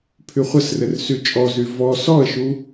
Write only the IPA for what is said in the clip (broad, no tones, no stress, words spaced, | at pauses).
pʰyχʷɘsrɘr syt͡ʃʼɔzy vɔ sɔə̯ʃu